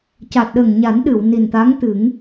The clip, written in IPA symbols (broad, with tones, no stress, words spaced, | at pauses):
ca˨˩t̚ɗə˨˩ŋɲa˨˩˦n ɗɨ˨˩˨wni˨˩nt̪a˧˥ŋt̪ɨ˨˩˦ŋ